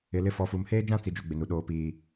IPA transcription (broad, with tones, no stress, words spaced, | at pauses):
ɪ˨lɪ˦˨ fɔ˨fu˨mheː˦d͡ʒã˦ t͡si˨ d͡ʒo˦ɡ͡bɪ˨nu˨ ɗoː˨piː˨